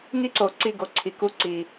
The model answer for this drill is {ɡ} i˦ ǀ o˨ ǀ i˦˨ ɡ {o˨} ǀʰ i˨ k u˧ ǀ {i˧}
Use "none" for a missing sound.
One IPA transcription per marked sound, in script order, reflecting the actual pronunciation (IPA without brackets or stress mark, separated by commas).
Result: ŋ, o˨, i˨